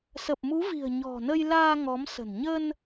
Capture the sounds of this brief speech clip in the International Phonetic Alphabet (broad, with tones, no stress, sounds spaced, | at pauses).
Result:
s ə˨˩ p̚ m u˨˦ v i̤˨˩ ə̯ ɲ ɔ̤˨˩ n ə˧ j l aː˧ ŋ ɔ˨˦ m s ə̤˨˩ n ɲ ə˧ n